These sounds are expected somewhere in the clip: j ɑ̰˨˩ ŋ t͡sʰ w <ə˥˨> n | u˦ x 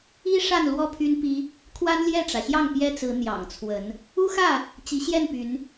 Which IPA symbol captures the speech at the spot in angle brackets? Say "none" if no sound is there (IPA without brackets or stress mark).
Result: ə˨˦